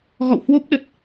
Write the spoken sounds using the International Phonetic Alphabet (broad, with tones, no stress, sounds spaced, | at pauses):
ɣ ɔ̰˧˨ w h w o˦˥ p̚ ɗ ə˨˩ t̚